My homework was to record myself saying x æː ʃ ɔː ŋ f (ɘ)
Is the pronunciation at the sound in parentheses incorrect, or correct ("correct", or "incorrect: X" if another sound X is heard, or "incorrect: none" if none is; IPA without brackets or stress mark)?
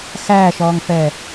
incorrect: ɛ